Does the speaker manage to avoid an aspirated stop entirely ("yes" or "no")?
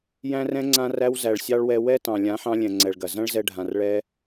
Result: yes